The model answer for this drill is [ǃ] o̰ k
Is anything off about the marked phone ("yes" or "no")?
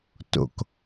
yes